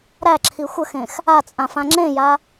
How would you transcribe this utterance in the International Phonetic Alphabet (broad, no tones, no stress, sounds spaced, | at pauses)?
ɾ æ ǁʰ i xʷ ə x ẽ x | a t͡sʼ ã f ã ŋ͡ǁ ẽ j a